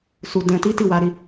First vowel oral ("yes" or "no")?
yes